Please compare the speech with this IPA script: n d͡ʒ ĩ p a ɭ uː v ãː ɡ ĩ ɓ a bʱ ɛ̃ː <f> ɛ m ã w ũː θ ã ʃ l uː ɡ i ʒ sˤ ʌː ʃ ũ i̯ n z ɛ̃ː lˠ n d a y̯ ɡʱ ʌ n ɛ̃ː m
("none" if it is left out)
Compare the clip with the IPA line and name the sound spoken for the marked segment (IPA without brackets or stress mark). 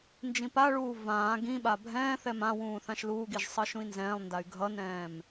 θ